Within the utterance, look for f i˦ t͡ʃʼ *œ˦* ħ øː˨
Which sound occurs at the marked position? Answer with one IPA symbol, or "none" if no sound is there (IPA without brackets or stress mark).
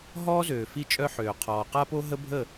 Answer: œ˦